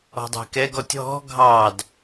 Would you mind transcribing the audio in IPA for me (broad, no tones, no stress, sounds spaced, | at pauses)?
ɔ̤ dˤ æ̤ k ɛ ɡ ɔ tʲ ɦ ɔ̤ ɡʱ ɑ d